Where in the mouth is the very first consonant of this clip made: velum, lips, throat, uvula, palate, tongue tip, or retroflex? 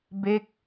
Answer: lips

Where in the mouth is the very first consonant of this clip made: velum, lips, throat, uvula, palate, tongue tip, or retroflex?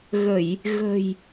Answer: velum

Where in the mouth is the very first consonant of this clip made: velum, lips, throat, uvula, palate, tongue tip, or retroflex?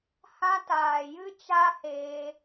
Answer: throat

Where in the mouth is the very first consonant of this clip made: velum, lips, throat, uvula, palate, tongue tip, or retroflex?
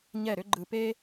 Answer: palate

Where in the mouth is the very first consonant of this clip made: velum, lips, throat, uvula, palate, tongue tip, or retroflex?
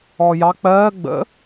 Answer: palate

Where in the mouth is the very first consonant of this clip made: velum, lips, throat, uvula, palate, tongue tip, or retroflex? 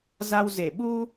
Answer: tongue tip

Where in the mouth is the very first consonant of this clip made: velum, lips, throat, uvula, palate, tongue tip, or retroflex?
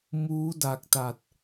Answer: lips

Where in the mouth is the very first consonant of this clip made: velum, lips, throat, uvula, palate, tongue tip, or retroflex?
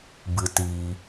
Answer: lips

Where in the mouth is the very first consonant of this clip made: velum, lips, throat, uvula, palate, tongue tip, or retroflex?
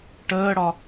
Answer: retroflex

